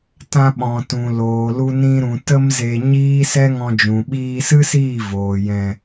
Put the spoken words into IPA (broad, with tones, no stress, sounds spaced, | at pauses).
t ã˧ ɓ ɔ̃˨ t ũ˨ l oː˨ l u˧ n ĩ˧ ɾ ũ˨ t ə˦ m z e˧ ɲ iː˦ s ɛ˦ ŋ ɔ̃˧ d͡ʒ ũ˨ ɓ iː˧ s ɨ˦ s iː˦˨ v oː˨ j ɛ̃˨